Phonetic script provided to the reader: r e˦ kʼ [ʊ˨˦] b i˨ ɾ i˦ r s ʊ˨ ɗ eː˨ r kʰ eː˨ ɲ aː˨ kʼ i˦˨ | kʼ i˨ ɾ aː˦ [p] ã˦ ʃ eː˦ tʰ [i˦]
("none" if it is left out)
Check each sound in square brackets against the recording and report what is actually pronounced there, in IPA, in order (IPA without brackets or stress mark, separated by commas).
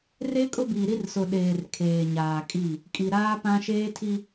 ʊ˦, p, i˦